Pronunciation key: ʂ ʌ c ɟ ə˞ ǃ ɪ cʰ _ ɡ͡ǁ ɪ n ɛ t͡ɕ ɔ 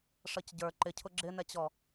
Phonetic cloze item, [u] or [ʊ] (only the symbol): ʊ